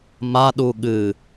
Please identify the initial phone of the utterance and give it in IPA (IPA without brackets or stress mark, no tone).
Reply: m